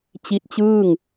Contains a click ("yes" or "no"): no